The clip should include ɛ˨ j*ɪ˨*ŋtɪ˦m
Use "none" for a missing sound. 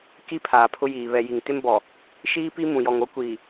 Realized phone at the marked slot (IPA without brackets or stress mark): i˨